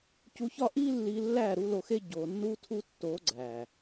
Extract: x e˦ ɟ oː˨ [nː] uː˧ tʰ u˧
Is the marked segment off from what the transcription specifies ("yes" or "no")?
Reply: no